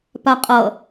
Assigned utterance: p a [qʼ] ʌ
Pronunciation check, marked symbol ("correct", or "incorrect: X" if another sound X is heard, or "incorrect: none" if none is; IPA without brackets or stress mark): correct